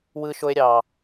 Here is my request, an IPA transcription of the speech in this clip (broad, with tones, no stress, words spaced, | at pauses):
wɯ˦ʃo˦e̯ ɾʲɑ˦